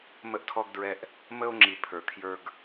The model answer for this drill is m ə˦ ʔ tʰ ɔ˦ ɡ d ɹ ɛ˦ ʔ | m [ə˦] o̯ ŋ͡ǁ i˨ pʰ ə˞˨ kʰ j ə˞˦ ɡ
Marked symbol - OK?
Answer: yes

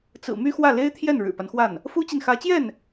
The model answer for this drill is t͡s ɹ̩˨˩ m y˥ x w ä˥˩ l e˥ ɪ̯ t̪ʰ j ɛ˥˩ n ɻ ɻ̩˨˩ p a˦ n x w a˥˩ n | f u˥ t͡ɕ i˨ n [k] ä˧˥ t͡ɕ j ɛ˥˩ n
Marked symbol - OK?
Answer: no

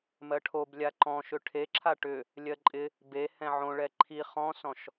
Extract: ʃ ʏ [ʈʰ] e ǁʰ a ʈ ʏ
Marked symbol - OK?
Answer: yes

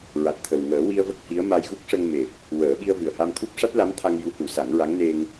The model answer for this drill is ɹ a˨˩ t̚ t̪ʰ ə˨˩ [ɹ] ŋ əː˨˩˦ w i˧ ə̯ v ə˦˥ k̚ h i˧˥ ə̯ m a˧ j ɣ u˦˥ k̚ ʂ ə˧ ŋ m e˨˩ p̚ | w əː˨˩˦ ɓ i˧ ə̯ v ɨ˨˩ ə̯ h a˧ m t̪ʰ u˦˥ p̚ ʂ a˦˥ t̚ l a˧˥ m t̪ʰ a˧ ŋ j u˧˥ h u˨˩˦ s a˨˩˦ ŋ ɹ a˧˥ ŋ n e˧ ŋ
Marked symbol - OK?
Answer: no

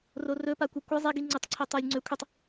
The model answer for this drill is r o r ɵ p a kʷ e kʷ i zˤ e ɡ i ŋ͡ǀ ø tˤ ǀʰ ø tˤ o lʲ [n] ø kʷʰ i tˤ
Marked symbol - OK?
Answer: no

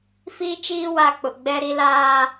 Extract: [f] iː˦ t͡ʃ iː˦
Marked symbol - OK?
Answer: yes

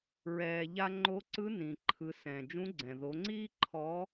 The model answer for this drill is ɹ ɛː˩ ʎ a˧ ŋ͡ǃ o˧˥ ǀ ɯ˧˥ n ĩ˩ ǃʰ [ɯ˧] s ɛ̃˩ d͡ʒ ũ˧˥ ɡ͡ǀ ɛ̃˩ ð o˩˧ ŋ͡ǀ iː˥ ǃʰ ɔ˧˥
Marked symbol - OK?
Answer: no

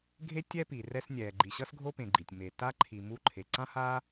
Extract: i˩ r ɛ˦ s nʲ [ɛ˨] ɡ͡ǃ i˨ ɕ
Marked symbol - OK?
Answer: no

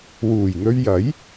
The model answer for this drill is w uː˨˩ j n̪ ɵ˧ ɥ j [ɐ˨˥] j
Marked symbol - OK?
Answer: yes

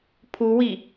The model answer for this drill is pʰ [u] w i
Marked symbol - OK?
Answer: yes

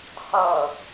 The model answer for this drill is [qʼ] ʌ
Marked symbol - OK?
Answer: no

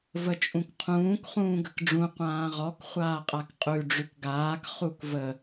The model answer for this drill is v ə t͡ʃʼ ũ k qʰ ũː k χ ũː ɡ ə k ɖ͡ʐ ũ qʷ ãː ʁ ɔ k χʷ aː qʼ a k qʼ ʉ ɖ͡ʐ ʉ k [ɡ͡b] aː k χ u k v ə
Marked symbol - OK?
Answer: no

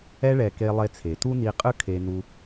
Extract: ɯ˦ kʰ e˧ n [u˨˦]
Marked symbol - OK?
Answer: no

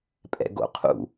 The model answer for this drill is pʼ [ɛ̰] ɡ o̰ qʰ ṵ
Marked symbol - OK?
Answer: yes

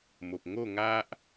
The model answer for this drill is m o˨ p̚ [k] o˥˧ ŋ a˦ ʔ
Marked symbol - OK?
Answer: no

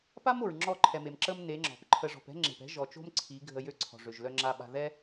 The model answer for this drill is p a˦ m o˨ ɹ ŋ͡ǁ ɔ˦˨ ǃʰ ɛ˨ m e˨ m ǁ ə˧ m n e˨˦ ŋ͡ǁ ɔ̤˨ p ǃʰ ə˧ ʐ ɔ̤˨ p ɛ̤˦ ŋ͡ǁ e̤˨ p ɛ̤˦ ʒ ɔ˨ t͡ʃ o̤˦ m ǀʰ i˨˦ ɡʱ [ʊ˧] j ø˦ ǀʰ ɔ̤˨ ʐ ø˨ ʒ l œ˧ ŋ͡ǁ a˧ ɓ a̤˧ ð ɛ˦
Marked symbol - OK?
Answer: no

